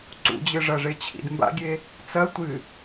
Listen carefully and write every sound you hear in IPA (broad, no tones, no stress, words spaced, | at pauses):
ǀṵd͡ʑɨʐɐʐe t͡ɕʰḭdmba̰ɡʲe | t͡sɐ tʷɨ